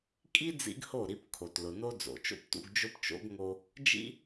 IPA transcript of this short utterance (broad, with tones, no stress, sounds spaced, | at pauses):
kʼ i˦ d͡z ḭ˦ ɡ h o˦˨ ɾ i˧ p kʰ o˨ t l ʊ˨ n o˦ d͡z o̰˨ t͡ʃ o̰˦ p t ṵ˧ ɡ d͡ʒ ʊ˦ p t͡ʃ o̰˦ ɡ ŋ o˧ | d͡ʒ ḭ˦